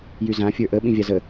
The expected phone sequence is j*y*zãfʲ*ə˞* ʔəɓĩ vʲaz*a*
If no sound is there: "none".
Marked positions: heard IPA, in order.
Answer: y, ə˞, ə

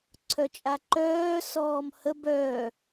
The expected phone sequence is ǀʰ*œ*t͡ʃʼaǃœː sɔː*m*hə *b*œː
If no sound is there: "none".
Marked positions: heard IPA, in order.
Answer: œ, m, b

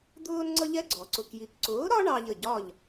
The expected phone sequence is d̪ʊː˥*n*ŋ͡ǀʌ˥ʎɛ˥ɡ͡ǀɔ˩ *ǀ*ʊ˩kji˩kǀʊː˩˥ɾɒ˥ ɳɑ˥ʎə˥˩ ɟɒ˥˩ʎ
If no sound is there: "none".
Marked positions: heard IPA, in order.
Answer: n, ǀ

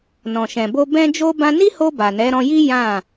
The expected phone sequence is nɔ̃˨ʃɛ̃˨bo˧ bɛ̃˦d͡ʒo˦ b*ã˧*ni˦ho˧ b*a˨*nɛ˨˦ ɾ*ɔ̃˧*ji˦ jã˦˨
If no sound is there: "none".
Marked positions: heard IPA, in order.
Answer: ã˧, a˨, ɔ̃˧

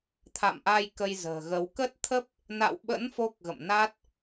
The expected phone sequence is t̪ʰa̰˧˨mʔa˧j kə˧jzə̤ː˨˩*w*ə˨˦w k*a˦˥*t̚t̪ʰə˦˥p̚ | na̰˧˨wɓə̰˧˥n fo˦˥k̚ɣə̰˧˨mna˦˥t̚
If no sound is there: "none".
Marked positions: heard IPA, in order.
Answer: ɣ, ə˦˥

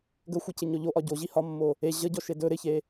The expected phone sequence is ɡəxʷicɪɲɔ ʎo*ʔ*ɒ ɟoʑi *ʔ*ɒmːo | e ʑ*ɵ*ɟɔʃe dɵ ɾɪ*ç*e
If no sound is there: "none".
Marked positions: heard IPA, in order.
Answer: ʔ, h, ə, ç

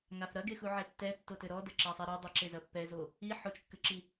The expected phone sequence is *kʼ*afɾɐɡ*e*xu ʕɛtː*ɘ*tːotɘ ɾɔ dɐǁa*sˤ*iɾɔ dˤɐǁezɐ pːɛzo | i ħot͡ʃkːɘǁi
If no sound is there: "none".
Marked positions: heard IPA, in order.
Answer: ŋ, e, ɛ, sˤ

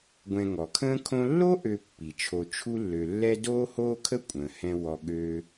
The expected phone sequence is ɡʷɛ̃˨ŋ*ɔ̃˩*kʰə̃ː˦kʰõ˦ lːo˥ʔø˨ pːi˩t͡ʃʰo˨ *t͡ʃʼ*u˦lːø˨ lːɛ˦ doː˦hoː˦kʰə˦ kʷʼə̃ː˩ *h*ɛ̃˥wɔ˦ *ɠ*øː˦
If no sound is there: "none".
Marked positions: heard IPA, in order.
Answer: ɔ˩, t͡ʃʰ, h, ɠ

